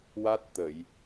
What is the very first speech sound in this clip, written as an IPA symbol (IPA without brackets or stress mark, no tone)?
w